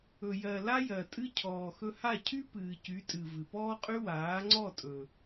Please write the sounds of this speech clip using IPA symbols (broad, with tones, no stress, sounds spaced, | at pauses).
ɵ˨ j ɜ˨ l a˦ j ɜ˨ tʼ ɨ˦ cʰ ɔː˨ x ɵ˧ h a˦˨ cʰ y˦ p ɨː˨ c y˨˦ tʼ ɨ˨ v ɨ˨ p ɔː˦ qʼ y˦ w aː˨˦ ŋ͡ǀ ɔ˦˨ tʼ ɵ˨